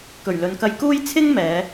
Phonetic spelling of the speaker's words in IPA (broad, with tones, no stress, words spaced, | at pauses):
kɵ˨˩ɥlɵ˨nkɐ˧jkuː˥j t͡sʰɪ˥ŋ mɛː˨˧